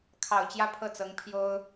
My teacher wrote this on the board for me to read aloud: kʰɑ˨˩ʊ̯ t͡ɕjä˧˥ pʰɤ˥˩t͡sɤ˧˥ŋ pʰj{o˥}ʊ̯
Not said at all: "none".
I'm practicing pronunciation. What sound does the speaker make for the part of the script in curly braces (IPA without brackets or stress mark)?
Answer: o˥